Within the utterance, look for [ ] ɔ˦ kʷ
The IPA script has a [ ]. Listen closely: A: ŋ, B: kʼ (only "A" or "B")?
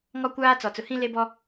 A